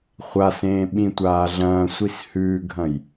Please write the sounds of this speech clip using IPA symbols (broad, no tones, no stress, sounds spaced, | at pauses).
χʷ a s ẽː ɓ ĩ tʷ aː ɮ ɐ̃ː sʷ i s h ʉː ɡʱ ɐ̃ j